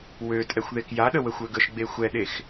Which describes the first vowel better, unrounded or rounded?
rounded